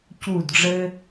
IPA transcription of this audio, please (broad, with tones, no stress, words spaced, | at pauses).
cu˦˨dɖ͡ʐɘ˦